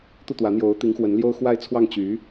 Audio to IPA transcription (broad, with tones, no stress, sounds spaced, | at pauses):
t̪ u˥˩ t̪ w ä˧˥ n̪ j o˧˥ ʊ̯ t̪ i˧˥ ŋ x w ə˧˥ n l j o˥ ʊ̯ x w a˥˧ ɪ̯ t͡sʰ w ɑ˥˩ ŋ t͡ɕ y˧˥